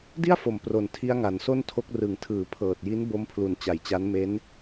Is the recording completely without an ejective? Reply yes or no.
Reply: yes